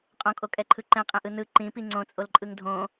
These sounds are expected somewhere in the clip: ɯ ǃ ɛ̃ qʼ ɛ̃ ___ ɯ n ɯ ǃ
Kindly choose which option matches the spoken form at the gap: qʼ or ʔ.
ʔ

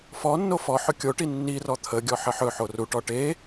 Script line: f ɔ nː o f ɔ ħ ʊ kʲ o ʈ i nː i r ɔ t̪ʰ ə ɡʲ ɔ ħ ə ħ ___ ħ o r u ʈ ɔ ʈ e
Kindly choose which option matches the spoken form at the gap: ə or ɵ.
ɵ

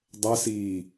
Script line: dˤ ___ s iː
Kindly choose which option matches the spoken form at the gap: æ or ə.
ə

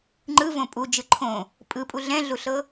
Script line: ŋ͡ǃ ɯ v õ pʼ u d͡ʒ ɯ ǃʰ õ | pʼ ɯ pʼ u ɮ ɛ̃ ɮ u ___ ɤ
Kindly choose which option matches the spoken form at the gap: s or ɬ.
ɬ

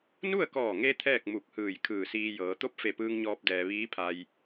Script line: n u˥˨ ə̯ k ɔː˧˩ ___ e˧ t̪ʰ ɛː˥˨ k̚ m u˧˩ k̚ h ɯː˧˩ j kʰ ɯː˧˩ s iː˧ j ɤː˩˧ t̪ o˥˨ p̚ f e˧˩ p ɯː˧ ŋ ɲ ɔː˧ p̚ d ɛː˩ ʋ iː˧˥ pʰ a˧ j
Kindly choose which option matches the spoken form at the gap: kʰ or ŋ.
ŋ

